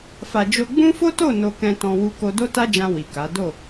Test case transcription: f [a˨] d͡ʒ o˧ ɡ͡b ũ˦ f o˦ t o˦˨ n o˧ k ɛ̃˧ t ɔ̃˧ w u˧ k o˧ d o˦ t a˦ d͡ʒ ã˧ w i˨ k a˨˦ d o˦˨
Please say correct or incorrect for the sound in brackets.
correct